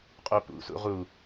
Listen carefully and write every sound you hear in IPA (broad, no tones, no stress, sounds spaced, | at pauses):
qʼ o p ṵ s ṵ ʁ u